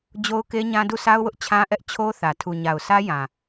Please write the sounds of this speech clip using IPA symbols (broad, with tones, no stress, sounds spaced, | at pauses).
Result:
d͡ʑ o˦ ʊ̯ k e˦ ɲ ã˦ d u˦˨ s a˦ ʊ̯ w ʊ˦ ʔ t͡ɕʰ ã˦ ʔ ɛ˦ ʔ t͡ɕʰ o˦ θ ä˨ tʰ u˨ ɲ a˨ ʊ̯ s ä˦ j ã˨